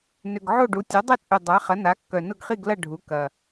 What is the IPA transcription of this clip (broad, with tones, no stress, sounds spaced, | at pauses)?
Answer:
n ʏ˨˩ ɡ ʕ o˥˨ ɖ u˩˥ tʲ œ˩˥ dˤ ɪ˥˨ t͡sʼ y˨˩ dˤ a˩˥ χ ɐ˩˥ n a˩˥ kː œ˨˩ n ʊ˥˨ ɡ χ i˥˨ ɡ l ɐ˥˨ ɖʱ u˩˥ k ɐ˨˩